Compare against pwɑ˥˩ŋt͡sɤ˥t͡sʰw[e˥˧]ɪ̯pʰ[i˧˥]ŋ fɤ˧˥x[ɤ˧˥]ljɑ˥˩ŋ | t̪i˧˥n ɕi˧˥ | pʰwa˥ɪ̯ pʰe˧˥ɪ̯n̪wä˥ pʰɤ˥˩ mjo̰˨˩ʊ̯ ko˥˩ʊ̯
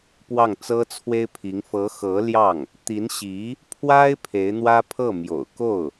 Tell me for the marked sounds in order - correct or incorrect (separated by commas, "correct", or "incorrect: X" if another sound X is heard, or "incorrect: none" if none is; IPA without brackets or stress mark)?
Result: incorrect: e˥, correct, correct